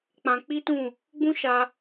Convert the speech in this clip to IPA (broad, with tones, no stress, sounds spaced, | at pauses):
k͡p ã˧ k͡p i˦ t ũ˦˨ | ɡ͡b ũ˦ ʃ a˧